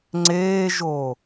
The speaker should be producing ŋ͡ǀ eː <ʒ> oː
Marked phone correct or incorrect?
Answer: correct